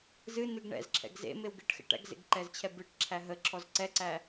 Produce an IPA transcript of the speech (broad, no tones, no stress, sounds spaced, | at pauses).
z ɨ n ɨ ɡ ɳ ɛ̰ z ǁʰ ɛ̰ ɡ z ḛ m e w ɡ ɨ ʈ x ɛ̰ ʈ æ̰ ɡ z ḛ ɡ ǃ ɛ z t͡ɕʰ ɛ b ɨ ʈ ǁʰ æ ɦ ə ǁʰ ɔ z ǀ ɛ ǀ æ